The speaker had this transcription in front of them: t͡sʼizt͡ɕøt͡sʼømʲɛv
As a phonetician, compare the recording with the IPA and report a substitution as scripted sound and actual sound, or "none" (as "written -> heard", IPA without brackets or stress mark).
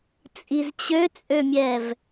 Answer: none